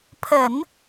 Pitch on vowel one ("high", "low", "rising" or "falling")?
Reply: low